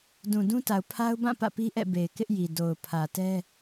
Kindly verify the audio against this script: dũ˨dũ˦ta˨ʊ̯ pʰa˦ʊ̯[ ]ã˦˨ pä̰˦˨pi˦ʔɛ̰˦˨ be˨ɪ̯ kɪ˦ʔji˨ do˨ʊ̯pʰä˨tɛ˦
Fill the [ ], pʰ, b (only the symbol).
b